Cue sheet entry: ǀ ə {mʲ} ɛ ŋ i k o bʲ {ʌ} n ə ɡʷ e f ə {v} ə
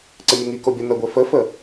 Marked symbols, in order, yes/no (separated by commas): yes, yes, no